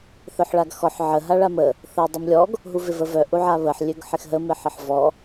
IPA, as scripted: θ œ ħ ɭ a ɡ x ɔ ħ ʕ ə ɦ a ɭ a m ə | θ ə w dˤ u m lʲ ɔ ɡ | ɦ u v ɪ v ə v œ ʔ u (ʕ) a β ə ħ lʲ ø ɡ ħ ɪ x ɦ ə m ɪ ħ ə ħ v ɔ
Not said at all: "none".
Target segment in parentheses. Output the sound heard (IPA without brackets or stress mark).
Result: ʕ